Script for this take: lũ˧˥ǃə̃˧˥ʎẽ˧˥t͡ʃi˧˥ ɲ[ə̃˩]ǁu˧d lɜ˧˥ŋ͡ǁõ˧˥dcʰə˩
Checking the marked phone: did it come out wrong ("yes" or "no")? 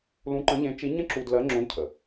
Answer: yes